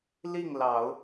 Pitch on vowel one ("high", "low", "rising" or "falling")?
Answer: falling